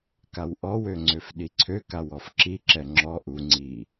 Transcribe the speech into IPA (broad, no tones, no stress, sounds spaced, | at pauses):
k a w ʔ ɔ w ø ŋ͡ǀ ø f ɗ i ǀʰ ø k a w ɔ f ǁ i ǁ ɛ ŋ͡ǁ ɔ ʔ u ŋ͡ǀ i